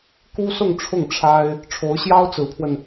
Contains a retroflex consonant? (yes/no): yes